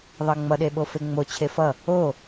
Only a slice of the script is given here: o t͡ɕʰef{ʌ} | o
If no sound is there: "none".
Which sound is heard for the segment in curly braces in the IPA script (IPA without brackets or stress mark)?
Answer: ʌ